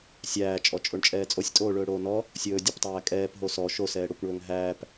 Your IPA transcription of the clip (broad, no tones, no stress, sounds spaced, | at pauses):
sʲ æː t͡ʃʼ ɔ t͡ʃʼ o ɳ t͡ʃʼ ɛː t͡sʼ o sʲ tʼ oː ɭ ɵː ɽ oː n ɔ | sʲ ɵː dʲ ɵ p tˤ æː kʼ ɛː p ɦ o s ɔ ʃ o s ɛː ɽ o kʷ ɳ ɵː ŋ ɦ æː p